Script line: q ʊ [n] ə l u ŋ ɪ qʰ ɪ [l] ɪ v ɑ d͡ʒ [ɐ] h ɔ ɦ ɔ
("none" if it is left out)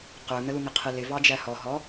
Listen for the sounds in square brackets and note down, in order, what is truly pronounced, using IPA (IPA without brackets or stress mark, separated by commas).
n, l, æ